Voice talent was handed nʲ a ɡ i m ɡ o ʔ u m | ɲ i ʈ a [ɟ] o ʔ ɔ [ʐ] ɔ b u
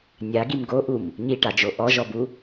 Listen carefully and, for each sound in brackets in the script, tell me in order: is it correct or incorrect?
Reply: incorrect, incorrect

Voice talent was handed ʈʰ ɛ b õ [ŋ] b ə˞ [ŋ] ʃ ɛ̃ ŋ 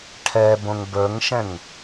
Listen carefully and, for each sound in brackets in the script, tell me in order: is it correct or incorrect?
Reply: correct, correct

